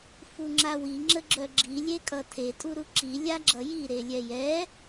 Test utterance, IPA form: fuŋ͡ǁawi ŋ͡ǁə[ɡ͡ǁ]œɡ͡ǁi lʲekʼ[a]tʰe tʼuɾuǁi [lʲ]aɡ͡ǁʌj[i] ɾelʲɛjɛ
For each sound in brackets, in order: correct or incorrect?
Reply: correct, incorrect: ʌ, correct, correct

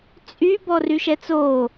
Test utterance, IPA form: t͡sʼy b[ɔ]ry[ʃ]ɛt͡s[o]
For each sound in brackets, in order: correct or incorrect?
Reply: correct, correct, correct

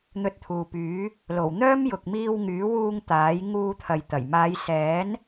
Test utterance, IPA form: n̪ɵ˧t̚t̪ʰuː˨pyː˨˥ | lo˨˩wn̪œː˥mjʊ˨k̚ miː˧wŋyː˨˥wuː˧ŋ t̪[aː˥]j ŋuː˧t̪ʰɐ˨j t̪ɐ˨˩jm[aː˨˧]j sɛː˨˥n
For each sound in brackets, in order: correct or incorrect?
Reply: incorrect: aː˨˥, correct

